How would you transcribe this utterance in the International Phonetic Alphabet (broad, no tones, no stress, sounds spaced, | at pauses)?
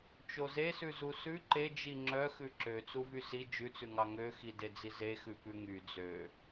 t͡ʃ o z e s ʉ z u s ʉ ǃ e d͡ʒ i ŋ͡ǁ œ x ʉ ǁ ø t͡s u v y s i d͡ʒ ʉ t͡s ʉ ŋ ɑ ŋ ø x i d e d͡z i z e x ʉ p ʉ ŋ y d͡z ø